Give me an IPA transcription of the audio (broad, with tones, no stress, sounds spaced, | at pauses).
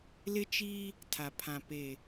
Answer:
l ɪ˦ t͡ʃ i˦ | tʰ a˨ pʰ ã˨ p e˨